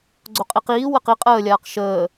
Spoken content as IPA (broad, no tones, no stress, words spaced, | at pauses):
ɡ͡ǀoqʼiqiː wəqi qʼəːlʲaːq ʃəː